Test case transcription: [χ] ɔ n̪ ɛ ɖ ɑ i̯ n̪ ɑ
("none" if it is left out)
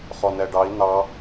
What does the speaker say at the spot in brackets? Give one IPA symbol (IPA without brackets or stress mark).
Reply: χ